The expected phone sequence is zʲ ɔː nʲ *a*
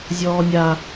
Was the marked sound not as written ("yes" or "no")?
no